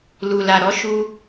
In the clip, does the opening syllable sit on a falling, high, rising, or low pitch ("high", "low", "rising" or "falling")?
low